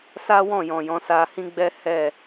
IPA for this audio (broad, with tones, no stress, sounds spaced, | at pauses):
s a˦ w ɔ̃˦˨ j ɔ̃˨ j ɔ̃˨˦ s a˧ h ĩ˦ ɡ͡b ɛ˦ h ɛ˦˨